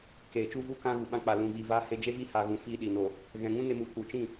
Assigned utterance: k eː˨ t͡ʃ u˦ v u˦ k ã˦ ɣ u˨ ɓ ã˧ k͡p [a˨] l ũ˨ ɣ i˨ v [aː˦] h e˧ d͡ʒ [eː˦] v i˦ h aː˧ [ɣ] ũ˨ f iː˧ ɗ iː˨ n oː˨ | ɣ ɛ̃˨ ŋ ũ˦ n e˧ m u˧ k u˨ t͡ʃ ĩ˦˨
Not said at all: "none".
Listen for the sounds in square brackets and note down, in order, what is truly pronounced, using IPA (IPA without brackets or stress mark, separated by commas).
a˨, aː˦, e˦, ɣ